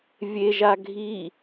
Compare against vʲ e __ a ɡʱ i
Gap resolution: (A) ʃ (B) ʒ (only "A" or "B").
B